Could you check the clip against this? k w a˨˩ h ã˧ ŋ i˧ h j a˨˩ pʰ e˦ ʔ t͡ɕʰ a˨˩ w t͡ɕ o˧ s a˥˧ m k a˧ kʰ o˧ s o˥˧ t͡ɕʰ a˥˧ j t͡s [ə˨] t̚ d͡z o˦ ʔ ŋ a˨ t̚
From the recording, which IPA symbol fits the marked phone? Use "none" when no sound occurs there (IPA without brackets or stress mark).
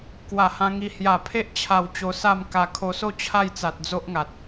a˨